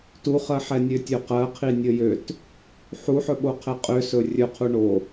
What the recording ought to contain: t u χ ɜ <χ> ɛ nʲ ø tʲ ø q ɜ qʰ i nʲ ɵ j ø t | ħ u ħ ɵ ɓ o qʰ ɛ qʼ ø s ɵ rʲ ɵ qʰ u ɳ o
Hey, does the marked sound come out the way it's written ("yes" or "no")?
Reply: no